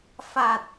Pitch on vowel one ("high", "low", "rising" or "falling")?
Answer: low